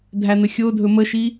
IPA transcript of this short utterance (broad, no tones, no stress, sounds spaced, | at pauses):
dʱ æ n̪ ə xʲ o dʱ ɵ m ə ʃ i